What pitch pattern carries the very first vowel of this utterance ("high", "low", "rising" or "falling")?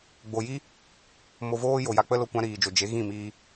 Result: low